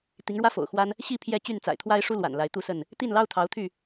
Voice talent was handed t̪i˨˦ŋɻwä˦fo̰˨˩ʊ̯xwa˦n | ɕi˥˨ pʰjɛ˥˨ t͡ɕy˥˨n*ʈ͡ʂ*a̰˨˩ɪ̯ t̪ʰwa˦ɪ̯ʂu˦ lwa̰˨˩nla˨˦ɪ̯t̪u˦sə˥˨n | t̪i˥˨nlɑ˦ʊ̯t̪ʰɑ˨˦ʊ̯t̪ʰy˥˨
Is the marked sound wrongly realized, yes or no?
yes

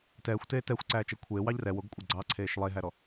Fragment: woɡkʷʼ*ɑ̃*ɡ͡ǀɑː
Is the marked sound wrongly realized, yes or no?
yes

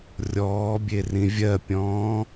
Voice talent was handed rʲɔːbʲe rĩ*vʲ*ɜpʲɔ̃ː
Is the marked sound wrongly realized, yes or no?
no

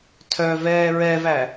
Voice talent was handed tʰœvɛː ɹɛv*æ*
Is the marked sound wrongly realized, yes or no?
no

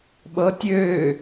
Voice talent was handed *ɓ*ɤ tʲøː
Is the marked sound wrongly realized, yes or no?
no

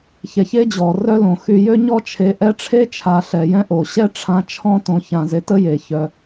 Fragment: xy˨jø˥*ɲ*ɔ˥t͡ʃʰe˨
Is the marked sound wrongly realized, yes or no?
no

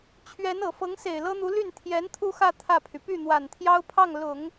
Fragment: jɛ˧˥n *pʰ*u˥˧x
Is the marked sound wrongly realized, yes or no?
yes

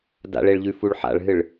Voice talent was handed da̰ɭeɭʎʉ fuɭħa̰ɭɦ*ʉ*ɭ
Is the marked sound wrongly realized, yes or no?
yes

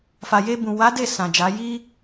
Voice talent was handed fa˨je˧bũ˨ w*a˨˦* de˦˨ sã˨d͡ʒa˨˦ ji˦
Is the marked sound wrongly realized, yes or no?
no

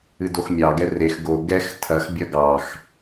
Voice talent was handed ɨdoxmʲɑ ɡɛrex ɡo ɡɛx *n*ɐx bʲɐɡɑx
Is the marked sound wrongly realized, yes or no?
yes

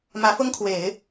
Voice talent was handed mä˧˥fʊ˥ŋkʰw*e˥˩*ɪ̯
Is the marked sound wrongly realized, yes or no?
yes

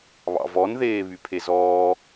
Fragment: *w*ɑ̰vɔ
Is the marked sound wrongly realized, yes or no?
yes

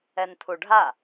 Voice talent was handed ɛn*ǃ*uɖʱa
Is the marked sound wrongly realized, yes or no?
yes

